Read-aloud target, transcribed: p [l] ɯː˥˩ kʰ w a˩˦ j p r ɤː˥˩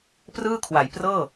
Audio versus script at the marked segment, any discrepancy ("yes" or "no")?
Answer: yes